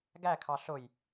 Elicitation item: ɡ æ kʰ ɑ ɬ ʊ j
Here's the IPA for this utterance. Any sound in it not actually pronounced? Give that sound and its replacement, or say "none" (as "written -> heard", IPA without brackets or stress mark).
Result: none